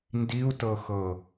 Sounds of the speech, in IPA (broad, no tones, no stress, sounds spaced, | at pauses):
n d i u̯ t ɤ x ɤ